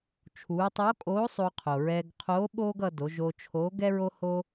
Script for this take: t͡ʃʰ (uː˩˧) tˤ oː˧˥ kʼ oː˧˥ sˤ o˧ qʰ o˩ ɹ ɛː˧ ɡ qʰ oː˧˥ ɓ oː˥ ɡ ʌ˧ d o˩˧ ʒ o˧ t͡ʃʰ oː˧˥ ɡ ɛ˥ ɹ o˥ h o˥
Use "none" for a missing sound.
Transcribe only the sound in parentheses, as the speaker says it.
uː˩˧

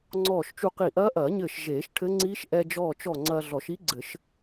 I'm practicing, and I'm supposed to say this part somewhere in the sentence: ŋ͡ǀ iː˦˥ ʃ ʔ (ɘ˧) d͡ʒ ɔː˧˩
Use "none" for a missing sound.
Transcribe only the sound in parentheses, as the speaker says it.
ɛ˧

